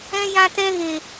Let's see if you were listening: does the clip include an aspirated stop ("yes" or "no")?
no